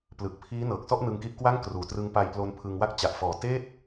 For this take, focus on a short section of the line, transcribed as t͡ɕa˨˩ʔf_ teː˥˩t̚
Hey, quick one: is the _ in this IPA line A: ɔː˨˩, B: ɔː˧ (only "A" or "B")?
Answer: A